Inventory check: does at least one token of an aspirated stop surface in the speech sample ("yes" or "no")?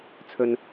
yes